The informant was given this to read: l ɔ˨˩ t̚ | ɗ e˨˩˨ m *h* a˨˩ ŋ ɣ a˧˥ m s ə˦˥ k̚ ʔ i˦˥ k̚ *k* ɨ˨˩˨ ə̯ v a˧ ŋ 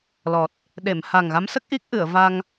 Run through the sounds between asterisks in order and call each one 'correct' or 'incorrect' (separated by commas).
correct, incorrect